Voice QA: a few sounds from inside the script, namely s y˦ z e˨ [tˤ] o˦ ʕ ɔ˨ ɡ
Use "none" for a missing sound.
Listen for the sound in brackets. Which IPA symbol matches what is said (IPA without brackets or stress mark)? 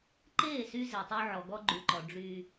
tˤ